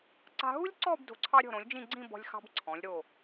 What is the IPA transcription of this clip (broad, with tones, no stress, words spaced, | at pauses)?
ǀa̤˧ɦu˥lʲǀɔ˥˧b do̤˧˩ ǀʰɑ˧ɾʲɔ̤˧˩ɾõ˩˧lʲ d͡ʒĩ˥˧ɡ͡ǀĩ˥˧bɔ̤˧lʲxɑ̤˧b ǀʰɔ̃˩˧lʲɾo˧˩